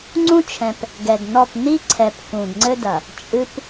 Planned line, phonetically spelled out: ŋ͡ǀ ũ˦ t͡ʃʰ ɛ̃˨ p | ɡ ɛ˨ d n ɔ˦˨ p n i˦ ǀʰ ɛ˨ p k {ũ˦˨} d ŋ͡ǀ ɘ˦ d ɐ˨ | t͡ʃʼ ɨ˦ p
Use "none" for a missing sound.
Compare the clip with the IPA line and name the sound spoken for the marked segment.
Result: ũ˨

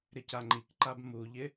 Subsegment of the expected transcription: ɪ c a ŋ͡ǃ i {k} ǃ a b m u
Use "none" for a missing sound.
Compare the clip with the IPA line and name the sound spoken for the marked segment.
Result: k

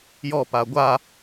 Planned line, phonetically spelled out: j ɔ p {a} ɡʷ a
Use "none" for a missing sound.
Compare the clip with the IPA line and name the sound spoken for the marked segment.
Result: a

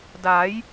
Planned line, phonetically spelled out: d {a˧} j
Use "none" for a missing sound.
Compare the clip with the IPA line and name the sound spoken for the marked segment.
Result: a˩˦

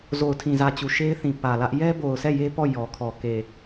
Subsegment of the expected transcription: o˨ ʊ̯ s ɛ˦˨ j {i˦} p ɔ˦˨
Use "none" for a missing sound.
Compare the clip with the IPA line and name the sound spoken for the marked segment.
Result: e˦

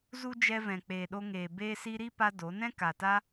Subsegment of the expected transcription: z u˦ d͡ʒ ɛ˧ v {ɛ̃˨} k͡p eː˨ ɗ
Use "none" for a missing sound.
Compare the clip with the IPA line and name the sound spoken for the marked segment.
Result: ɛ̃˨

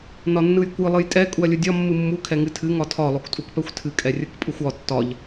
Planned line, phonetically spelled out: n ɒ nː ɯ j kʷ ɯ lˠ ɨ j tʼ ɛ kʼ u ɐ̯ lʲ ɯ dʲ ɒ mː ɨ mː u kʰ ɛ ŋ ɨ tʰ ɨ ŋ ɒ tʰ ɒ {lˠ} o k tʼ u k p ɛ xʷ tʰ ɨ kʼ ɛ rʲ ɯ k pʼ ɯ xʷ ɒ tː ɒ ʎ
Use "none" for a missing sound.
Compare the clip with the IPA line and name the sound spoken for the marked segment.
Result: lˠ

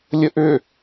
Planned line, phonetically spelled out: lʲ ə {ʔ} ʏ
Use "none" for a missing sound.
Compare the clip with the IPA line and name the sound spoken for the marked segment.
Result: ʔ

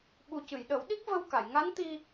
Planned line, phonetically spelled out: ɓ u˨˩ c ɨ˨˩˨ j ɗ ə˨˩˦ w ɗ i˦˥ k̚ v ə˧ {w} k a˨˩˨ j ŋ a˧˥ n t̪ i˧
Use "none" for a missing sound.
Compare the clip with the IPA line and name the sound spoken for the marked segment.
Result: w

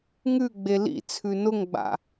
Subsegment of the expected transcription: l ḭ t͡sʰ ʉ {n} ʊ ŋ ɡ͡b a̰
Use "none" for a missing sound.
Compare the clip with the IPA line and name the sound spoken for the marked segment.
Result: n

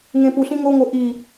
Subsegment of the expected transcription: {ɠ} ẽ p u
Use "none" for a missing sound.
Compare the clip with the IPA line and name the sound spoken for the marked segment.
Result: ŋ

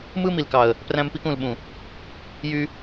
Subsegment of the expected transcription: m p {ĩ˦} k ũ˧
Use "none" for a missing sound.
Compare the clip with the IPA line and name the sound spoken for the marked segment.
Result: i˦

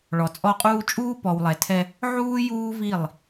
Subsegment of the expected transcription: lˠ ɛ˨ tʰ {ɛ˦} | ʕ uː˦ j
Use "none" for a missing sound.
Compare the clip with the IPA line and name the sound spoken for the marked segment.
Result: ɛ˦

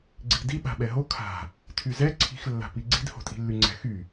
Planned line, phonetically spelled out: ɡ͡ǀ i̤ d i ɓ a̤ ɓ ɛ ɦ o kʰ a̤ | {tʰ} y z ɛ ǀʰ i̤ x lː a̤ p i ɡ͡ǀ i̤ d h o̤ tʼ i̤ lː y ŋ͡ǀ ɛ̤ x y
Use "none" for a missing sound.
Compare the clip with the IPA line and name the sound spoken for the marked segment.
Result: tʰ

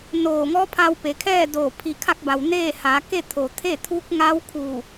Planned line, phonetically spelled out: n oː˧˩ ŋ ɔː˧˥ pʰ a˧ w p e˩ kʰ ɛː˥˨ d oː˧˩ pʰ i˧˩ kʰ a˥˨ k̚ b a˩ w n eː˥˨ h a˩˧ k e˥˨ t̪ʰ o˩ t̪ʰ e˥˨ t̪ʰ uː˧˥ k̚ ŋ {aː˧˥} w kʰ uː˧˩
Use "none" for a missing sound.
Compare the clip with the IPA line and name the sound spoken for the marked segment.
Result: a˧˥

